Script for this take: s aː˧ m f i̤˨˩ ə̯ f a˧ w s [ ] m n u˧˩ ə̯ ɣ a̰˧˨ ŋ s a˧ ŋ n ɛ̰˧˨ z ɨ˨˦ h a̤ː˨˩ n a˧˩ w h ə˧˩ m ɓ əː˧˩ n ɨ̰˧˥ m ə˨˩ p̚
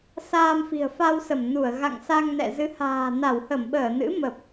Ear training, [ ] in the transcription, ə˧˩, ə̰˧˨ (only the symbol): ə˧˩